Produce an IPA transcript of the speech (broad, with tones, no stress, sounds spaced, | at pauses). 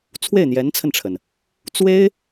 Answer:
t͡sʰ w e˥˩ ɪ̯ n̪ j ɛ˧˥ n t͡sʰ ə˧ n ʈ͡ʂʰ ə˩ n | t͡s w e˥ ɪ̯